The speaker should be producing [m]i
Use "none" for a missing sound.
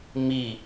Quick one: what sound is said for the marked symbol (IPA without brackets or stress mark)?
m